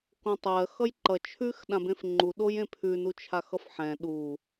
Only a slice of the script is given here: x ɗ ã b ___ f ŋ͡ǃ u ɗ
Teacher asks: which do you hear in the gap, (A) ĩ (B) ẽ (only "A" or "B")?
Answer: B